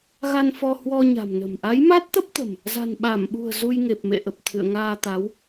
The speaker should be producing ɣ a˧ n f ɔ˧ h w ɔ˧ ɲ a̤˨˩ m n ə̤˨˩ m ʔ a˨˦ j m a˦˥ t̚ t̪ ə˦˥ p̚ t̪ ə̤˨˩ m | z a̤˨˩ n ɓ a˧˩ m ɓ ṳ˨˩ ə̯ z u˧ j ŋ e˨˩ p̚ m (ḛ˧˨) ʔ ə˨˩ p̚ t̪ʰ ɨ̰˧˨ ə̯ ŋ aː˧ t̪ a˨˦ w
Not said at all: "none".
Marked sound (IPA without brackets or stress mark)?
ḛ˧˨